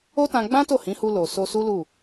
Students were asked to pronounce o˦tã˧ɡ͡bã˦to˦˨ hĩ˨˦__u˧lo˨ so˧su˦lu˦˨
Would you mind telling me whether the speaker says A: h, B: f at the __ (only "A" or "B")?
A